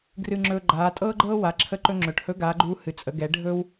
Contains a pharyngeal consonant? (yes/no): no